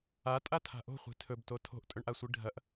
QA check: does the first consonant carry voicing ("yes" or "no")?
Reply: no